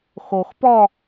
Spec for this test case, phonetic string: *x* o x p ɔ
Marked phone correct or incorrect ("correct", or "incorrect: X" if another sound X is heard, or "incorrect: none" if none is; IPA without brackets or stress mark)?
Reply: correct